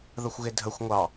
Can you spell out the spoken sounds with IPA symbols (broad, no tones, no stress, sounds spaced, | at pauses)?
ð ə xʷ ɣ ɪ dʱ ə xʷ ŋʷ ɑ